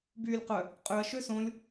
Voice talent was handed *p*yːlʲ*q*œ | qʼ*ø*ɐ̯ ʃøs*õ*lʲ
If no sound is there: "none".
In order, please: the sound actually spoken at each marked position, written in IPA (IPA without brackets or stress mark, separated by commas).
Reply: b, q, ø, õ